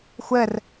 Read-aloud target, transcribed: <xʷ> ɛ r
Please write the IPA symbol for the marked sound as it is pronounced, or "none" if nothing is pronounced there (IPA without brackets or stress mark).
xʷ